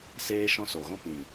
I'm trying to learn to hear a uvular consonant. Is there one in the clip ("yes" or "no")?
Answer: no